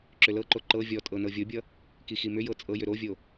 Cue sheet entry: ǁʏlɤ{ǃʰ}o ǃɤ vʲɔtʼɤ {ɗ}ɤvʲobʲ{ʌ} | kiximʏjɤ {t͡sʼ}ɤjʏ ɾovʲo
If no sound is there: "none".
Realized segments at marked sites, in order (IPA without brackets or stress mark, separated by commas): ǃ, n, ʌ, t͡sʼ